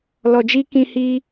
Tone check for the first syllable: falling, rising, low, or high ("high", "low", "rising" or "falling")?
low